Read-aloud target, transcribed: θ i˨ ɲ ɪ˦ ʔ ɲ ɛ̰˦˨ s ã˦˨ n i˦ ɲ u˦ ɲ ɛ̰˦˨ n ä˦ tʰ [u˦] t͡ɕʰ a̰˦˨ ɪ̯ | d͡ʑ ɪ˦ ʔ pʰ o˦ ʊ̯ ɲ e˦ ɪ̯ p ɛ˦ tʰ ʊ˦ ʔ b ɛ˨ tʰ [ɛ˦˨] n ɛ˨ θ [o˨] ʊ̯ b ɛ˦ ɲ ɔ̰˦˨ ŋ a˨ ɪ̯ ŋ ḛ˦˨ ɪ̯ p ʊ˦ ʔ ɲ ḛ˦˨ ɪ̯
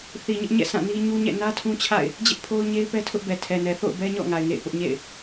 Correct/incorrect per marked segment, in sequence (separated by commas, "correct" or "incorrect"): incorrect, incorrect, incorrect